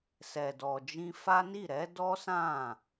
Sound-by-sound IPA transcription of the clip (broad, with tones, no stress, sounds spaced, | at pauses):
s ɛ˨ d ɔ˨ d͡ʒ ĩ˧ f a˦ n i˦˨ ɾ ɛ˨˦ d ɔ˦ s ã˦˨